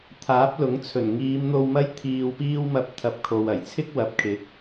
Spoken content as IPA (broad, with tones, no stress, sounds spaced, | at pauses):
t̪ʰ aː˨˥ p̚ l ʊ˨˥ ŋ t͡sʰ ɵ˨˩ n ŋ iː˨˧ m n̪ o˧ w m ɐ˥ j t̪ʰ iː˧ w p iː˥ w m ɐ˧ p̚ t̪ʰ ɐ˨˥ p̚ kʰ o˨ w ɐ˨˩ j t͡sʰ ɪ˥ k̚ w ɐ˨ p̚ kʰ ɪ˨˥ k̚